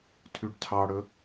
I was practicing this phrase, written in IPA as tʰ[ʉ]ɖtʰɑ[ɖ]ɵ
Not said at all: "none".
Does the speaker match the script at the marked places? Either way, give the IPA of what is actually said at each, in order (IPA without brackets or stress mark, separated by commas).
ʉ, ɽ